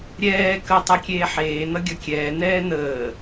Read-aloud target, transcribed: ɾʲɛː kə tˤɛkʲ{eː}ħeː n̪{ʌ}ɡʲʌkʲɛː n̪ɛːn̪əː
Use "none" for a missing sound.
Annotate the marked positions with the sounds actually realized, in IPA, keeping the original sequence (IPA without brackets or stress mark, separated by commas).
eː, ʌ